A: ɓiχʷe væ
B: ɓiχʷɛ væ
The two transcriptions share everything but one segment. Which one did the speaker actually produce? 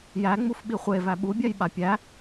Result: A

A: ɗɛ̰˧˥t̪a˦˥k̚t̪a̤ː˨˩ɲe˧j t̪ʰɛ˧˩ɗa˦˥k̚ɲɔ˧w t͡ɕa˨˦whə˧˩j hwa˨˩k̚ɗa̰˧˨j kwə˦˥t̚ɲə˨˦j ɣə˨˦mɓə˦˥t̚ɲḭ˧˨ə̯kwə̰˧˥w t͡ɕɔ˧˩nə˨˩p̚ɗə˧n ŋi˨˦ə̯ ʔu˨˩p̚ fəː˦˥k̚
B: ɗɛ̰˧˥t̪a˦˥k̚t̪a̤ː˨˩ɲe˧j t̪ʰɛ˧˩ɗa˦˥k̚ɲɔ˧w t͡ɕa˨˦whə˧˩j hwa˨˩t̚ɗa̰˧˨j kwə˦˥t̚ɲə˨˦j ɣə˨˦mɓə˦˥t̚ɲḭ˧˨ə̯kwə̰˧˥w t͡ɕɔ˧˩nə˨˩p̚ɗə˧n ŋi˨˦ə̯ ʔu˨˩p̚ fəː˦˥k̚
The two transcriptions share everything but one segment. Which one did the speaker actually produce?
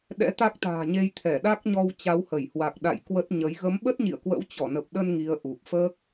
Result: A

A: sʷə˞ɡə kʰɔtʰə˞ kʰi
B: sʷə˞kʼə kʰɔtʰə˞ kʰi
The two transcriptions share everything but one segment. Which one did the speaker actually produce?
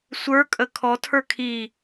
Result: B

